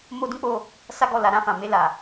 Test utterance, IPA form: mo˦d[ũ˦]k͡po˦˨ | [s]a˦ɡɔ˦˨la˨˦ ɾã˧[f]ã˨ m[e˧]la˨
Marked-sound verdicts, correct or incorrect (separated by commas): correct, correct, correct, correct